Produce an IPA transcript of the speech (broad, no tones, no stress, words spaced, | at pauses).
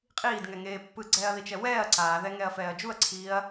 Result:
qʼiːdŋɛŋeː pːɯɡ͡ǀɛːɐ̯ðit͡ʃɛ wɛːɐ̯ ǀaːðɛŋɛɐ̯fɛːɐ̯ d͡ʒuɐ̯ǀʰiːɐ̯